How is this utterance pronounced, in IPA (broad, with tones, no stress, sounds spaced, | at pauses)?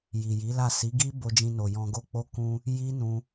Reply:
j i˨ j i˨˦ l a˦˨ s i˨˦ ɡ i˦ b o˧ d͡ʒ ĩ˧ n o˨ j ɔ̃˧ ɡ o˦ k͡p o˦ k ũ˧ | j i˦ n ũ˧